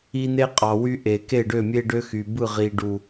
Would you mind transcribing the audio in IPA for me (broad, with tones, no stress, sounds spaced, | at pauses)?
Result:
i˦ n̪ e˦ qʼ ɑ˨ w y˦ ʔ e˨ k e˦˨ ɖ ø˦˨ mʲ e˦ ɖ ø˦ x y˨ b ɯ˦˨ ʁ i˨ ɖ u˨